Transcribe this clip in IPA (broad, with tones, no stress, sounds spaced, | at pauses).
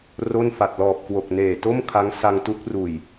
r o˥˩ n f a˨˩ t̚ l ɔː˨˩ p̚ k w o˨˩ k̚ n eː˨˩ t o˥˩ m kʰ a˦˥ ŋ s a˧ ŋ t u˦˥ k̚ r uː˨˩ j